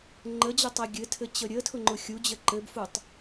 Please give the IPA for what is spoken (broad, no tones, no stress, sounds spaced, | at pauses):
ŋ͡ǃ ə d͡ʑ ə tˤ e ɡʲ ɘ tʰ ɘ t͡ɕ ə ɾʲ ə tʰ ʊ ŋ͡ǃ ʊ xʲ u d͡ʑ ə ǃ ɘ b f u tˤ